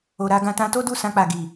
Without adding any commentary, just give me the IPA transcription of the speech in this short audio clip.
o˨ɾa˧ɡã˧ tã˧to˦du˦˨ sã˧k͡pa˨ɡi˨

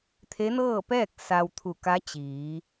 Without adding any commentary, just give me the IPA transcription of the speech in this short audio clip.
t̪ʰe˧˥nɤː˥˨pɛː˥˨k̚ sa˧wt̪ʰu˧˩ ka˧˥t͡ɕiː˩˧

